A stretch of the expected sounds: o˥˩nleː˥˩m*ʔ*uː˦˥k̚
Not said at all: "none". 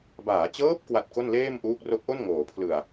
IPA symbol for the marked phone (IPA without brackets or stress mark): ʔ